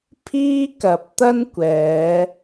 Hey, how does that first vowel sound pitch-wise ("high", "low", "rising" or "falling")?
high